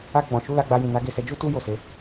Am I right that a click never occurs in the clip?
yes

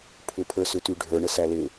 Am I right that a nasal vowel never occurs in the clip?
yes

